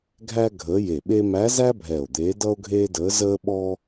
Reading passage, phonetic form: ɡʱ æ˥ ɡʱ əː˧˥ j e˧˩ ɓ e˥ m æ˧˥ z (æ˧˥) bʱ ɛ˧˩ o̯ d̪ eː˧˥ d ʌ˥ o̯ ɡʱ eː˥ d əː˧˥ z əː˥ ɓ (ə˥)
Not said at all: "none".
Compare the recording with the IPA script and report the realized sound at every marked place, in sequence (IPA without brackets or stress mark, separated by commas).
æ˥, ɔ˥